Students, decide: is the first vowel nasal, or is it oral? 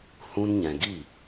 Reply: nasal